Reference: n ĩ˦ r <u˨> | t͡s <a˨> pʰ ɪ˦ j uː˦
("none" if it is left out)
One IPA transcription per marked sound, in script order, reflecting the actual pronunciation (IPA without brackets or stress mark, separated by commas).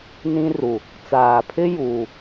u˨, aː˨